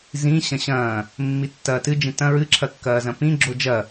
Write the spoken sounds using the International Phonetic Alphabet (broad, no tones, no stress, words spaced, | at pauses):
zĩ ɕɐ̃ɕɐ̃ː | mːitːɐːtɨ d͡ʒĩtɐ̃ ɹɨǁʰɐkːɐː zɐ̃pĩ ɡ͡ǁod͡ʒɐ